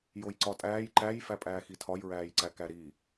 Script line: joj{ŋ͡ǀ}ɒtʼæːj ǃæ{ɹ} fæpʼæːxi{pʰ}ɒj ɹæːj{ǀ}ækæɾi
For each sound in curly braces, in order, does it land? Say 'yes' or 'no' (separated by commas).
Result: no, no, no, yes